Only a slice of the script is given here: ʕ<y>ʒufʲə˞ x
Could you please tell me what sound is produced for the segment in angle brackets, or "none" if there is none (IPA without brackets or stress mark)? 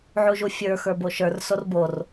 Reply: u